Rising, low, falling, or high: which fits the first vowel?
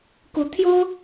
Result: rising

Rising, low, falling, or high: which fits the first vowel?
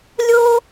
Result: high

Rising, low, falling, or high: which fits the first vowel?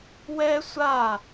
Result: high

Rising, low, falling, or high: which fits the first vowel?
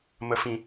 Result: low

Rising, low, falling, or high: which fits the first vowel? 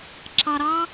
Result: low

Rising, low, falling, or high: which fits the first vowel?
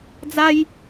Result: high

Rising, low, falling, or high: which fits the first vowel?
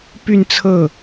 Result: falling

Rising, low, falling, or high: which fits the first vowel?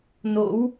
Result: rising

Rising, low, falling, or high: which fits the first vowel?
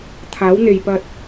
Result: rising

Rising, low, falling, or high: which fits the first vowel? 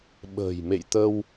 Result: low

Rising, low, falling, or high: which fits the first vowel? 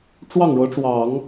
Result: falling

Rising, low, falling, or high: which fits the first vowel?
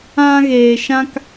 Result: high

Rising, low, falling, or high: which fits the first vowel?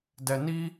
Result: low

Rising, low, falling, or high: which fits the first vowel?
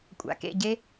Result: low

